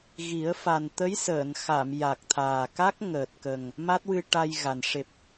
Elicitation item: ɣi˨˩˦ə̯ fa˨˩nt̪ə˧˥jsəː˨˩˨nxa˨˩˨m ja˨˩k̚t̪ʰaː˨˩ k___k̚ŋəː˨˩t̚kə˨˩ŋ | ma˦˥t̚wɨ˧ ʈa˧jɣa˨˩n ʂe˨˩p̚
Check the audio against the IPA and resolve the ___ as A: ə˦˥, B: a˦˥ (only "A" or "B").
B